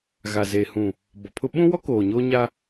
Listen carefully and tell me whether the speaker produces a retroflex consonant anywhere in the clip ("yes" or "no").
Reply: no